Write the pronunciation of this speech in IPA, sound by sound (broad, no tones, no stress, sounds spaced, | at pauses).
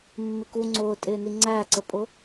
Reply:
mː ɪ k u ŋ͡ǀ ʊː tʼ ɪː n i ŋ͡ǀ æ ǀ ə pʼ ʊ